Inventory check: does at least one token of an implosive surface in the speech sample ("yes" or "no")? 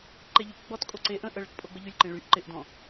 no